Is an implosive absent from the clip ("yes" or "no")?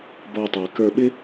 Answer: no